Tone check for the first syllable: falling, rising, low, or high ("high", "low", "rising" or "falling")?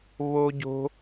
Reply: high